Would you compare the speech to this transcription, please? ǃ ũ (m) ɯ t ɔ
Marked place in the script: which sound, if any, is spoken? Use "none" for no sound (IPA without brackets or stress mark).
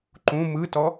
m